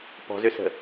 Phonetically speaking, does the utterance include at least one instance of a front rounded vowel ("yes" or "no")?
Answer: yes